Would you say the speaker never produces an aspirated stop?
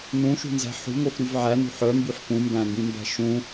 yes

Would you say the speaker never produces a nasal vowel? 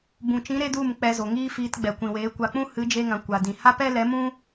no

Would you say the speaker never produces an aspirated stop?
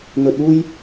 yes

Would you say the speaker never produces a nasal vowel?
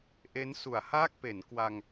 yes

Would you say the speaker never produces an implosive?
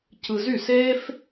yes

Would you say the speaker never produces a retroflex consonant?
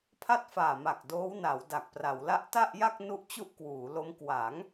yes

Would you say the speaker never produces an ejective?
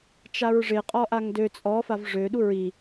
no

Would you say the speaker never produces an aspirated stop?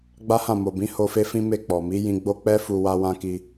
yes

